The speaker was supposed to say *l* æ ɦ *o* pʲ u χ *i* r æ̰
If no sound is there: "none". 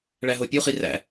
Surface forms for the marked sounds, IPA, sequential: ɭ, o, i

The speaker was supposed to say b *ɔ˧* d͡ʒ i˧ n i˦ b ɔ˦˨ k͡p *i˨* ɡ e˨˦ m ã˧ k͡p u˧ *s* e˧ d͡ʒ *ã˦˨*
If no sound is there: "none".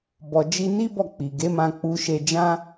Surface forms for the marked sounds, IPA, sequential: ɔ˧, i˨, ʃ, ã˦

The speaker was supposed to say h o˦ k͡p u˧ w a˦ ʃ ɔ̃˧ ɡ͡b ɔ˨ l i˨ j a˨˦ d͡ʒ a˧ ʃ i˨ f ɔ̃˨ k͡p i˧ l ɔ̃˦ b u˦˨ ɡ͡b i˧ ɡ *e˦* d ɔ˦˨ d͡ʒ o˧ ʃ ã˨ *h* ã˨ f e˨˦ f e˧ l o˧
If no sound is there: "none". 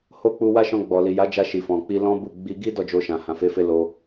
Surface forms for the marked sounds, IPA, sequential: i˦, h

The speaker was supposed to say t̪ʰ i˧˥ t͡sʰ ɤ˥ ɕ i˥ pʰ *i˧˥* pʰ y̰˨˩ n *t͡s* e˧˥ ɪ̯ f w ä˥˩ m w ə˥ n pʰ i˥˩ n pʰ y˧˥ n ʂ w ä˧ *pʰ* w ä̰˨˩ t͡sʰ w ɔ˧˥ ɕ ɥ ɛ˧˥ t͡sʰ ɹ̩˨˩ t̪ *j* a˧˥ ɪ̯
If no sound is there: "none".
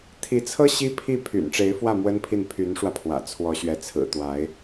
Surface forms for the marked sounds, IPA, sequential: i˥˩, ʈ͡ʂ, pʰ, w

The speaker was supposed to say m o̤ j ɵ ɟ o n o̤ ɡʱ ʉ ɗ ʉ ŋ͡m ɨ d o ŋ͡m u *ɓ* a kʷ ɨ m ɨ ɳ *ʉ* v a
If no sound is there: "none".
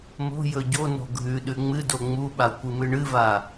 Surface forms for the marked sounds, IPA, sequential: ɓ, ɨ

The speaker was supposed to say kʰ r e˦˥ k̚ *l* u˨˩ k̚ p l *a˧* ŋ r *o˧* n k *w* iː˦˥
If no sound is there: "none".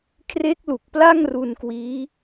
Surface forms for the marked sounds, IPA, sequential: l, a˥˩, u˧, w

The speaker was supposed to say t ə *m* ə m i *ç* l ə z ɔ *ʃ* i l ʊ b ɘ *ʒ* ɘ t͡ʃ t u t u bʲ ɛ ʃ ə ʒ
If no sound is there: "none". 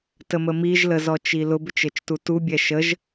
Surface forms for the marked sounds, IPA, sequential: m, ʒ, t͡ʃ, t͡ʃ

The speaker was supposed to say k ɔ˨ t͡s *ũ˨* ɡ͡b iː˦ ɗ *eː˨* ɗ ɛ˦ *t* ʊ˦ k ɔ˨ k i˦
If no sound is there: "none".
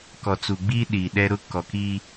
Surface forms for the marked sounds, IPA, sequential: u˨, iː˨, ɾ

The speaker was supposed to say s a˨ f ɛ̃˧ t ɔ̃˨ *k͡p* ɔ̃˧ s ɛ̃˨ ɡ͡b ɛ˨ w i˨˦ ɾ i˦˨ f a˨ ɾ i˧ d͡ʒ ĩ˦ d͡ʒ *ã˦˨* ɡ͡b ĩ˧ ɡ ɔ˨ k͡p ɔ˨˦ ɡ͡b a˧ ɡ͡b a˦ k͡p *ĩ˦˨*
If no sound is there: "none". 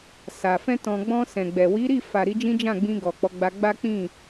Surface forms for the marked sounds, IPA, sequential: ɡ͡b, ã˦˨, ĩ˦˨

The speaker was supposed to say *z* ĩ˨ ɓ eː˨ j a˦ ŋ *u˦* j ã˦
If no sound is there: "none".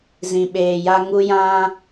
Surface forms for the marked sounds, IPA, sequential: z, u˦

